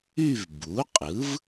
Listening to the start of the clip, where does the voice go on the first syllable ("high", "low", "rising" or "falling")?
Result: falling